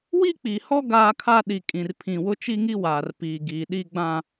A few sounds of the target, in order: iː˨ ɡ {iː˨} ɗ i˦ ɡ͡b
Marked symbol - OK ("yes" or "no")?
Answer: yes